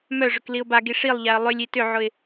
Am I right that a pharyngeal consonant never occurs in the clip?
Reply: no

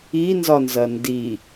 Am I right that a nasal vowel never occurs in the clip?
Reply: yes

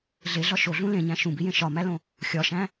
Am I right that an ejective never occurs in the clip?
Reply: yes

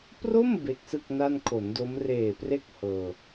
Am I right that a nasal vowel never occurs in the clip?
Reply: yes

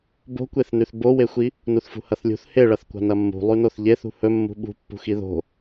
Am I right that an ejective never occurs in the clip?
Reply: yes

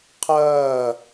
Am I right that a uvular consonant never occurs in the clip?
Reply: no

